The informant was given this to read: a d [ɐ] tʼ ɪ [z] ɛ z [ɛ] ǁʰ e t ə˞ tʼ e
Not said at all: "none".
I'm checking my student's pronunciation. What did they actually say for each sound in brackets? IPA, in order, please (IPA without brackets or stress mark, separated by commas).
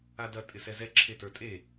ɐ, s, ɛ